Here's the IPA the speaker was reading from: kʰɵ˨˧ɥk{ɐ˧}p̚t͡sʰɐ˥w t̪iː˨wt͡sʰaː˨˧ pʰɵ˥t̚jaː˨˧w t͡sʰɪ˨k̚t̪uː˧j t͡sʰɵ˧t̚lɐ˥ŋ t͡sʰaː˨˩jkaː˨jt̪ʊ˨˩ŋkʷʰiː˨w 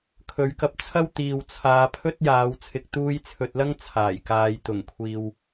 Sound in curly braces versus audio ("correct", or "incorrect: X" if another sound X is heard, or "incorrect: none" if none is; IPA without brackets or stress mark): correct